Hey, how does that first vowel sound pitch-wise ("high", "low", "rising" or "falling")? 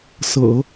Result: low